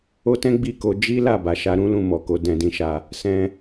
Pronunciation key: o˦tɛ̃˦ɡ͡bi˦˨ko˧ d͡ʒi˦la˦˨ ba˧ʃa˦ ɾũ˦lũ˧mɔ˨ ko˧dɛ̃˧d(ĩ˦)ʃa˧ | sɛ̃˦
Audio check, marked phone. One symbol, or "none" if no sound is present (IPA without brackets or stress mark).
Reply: ĩ˧